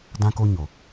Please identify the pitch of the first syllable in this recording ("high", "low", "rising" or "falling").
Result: high